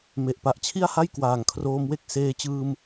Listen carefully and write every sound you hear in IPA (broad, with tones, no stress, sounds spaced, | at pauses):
m e˨˩ ʔ p a˨˩ ʔ t͡ɕʰ i˥˩ a̯ h a˥˩ j k w aː˨˩ ŋ kʰ r oː˧ m w e˥˩ k̚ s eː˧ t͡ɕ ɯː˧ m